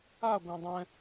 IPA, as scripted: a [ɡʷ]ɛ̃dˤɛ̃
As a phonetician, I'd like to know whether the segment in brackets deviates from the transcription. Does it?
no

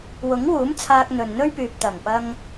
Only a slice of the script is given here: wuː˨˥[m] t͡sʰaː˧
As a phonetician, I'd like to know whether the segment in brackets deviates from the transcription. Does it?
no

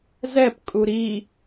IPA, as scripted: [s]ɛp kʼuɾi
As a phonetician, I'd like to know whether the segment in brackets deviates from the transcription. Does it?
yes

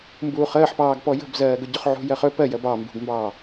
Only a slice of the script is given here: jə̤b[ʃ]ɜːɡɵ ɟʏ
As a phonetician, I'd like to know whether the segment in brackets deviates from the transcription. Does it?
yes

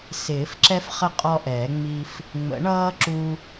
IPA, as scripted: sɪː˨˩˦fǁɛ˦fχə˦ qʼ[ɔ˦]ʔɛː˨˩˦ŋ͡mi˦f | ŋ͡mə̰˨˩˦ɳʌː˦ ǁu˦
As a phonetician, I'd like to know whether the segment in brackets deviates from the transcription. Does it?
no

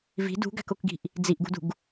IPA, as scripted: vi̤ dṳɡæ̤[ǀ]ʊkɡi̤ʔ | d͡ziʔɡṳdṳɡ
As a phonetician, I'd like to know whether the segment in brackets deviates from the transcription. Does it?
yes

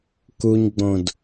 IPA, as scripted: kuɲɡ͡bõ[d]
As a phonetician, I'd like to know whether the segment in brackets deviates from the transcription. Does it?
no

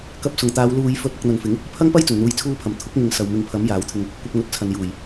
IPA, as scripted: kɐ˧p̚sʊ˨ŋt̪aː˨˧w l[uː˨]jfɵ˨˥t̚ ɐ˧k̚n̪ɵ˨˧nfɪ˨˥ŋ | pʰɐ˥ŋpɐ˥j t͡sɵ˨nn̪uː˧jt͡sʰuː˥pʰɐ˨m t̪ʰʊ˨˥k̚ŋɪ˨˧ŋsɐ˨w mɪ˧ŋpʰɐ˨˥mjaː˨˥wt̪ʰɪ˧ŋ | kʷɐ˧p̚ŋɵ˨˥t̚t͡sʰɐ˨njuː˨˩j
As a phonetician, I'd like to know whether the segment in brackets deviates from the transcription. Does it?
no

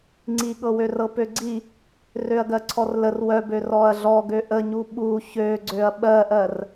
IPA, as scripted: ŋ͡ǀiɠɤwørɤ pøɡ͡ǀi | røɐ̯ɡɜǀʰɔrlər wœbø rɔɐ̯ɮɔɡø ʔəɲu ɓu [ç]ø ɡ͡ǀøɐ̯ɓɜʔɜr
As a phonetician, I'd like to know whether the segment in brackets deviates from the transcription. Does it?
no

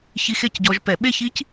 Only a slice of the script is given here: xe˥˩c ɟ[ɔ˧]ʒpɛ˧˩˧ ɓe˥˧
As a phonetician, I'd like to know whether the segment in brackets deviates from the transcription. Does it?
no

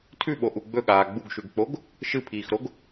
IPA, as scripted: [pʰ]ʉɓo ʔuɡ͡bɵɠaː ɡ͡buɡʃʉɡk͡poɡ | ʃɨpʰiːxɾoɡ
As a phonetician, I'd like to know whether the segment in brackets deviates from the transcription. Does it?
yes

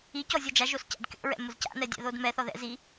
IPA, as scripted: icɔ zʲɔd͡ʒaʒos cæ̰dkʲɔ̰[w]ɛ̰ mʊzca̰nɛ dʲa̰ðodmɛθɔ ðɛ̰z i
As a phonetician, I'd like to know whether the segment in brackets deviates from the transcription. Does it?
yes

